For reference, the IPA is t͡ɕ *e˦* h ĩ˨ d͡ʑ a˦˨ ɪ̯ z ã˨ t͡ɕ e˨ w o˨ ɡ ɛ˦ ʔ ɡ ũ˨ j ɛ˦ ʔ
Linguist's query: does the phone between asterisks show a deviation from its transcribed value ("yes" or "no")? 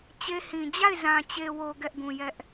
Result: no